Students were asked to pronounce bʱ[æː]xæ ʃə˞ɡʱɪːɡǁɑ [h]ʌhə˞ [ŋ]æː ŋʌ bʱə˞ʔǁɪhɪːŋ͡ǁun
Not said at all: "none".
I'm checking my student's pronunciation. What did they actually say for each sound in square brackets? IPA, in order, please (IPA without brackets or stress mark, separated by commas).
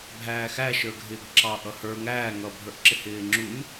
æː, ʔ, ŋ